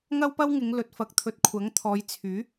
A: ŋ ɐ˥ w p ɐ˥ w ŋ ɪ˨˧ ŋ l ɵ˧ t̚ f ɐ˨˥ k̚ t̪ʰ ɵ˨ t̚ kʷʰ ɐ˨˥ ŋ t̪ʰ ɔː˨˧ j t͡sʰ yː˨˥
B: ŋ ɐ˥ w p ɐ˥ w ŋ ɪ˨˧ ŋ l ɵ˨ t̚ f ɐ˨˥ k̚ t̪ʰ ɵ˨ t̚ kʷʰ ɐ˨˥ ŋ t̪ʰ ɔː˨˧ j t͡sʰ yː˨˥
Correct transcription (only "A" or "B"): B